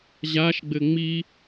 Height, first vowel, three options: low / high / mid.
low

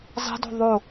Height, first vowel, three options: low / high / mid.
high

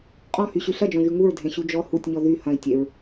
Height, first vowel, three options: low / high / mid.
mid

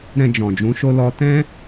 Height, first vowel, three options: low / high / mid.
mid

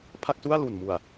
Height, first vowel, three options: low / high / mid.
low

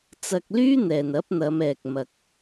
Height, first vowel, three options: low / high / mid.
low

